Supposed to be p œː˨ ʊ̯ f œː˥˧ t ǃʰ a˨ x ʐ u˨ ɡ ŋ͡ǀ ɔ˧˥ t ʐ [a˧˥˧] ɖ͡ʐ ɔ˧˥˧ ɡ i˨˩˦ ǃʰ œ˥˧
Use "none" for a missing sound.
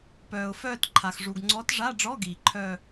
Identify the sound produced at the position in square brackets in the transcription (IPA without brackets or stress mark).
a˧˥˧